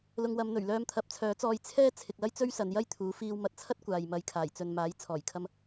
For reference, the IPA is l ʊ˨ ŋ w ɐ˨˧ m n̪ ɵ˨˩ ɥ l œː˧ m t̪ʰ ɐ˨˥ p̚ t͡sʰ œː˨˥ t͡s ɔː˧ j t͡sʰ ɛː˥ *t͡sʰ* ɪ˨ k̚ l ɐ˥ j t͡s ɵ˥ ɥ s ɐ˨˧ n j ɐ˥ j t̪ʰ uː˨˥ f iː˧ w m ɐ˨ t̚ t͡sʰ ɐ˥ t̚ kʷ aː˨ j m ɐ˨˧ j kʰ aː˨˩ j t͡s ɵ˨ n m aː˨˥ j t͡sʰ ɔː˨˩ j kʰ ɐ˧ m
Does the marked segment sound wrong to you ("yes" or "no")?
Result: no